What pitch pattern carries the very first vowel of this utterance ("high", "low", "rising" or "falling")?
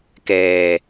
low